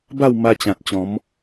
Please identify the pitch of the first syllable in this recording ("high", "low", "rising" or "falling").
falling